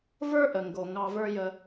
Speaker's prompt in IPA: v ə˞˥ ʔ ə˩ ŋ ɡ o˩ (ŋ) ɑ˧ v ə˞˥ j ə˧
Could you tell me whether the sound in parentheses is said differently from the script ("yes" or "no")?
no